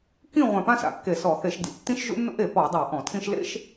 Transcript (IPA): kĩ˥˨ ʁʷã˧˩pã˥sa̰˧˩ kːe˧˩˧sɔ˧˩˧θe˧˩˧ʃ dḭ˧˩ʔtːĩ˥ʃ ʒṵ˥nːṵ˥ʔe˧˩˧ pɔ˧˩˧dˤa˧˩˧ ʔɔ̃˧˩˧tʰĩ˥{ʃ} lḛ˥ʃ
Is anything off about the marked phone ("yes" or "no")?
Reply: no